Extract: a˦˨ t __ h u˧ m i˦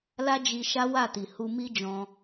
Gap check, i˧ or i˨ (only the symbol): i˨